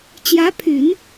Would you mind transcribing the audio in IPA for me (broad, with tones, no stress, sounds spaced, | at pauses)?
t͡ɕ j ä˧˥ pʰ y˨˩˦ n